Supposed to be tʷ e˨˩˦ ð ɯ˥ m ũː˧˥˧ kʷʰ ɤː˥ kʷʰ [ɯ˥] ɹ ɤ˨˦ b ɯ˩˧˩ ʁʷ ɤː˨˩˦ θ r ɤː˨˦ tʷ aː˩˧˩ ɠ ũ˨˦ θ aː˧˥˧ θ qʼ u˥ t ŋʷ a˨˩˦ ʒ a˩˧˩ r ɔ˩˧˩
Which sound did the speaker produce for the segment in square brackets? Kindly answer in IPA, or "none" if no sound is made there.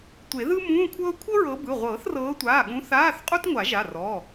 ɤ˥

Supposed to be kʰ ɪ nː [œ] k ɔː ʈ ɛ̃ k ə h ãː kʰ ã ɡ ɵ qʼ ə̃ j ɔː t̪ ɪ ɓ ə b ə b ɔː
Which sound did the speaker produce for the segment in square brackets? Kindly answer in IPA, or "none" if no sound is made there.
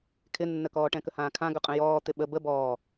ə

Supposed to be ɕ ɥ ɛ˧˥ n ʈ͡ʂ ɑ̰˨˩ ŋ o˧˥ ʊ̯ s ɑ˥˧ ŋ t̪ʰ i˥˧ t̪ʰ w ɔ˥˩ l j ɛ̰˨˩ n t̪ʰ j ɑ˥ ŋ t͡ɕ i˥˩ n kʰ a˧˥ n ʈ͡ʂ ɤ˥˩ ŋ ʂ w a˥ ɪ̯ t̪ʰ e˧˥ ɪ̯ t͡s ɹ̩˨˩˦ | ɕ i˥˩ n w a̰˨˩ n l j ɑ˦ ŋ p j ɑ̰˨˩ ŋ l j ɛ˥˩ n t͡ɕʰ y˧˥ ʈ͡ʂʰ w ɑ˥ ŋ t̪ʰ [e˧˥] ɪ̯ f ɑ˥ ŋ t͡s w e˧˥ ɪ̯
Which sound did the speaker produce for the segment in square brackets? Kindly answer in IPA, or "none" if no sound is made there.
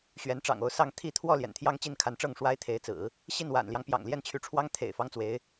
ḛ˨˩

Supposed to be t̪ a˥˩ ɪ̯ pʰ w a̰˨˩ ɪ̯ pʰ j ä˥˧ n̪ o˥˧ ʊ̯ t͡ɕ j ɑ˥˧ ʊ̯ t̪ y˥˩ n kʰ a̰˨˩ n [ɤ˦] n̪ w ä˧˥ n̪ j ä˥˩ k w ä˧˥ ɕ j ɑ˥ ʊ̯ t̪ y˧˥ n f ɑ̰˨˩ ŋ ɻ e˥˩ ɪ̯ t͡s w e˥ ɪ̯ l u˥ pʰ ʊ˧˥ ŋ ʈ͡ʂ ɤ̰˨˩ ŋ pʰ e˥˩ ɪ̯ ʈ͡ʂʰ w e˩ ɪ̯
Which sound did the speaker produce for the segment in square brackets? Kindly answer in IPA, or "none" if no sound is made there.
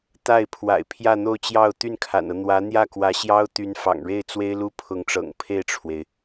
ɤ˦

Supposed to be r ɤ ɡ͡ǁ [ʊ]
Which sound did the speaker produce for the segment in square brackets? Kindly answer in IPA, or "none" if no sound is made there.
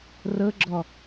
ɔ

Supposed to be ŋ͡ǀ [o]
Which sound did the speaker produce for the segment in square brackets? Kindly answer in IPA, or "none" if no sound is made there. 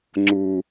u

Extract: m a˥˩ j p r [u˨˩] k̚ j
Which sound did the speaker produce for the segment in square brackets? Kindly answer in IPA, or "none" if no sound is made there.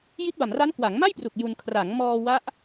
u˨˩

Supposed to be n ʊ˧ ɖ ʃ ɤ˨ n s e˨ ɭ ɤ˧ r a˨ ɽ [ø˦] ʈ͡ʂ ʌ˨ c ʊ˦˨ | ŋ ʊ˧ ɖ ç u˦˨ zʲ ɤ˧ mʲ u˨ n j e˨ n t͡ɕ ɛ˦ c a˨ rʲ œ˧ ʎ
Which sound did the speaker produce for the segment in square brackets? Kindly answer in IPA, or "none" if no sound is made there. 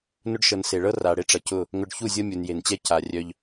e˦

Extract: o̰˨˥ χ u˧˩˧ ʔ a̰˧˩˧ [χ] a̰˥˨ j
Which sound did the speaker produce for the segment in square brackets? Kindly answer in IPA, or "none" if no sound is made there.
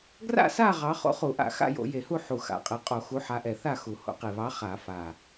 x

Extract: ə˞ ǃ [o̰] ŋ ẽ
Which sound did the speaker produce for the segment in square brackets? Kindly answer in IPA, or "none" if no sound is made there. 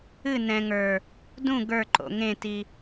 o̰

